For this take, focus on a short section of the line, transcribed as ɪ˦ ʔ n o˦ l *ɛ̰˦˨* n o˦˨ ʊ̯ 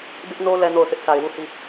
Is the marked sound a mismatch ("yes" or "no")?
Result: yes